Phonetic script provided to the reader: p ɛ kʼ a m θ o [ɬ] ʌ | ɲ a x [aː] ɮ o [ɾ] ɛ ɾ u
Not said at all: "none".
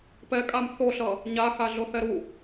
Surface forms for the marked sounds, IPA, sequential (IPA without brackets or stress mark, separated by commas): ɬ, a, θ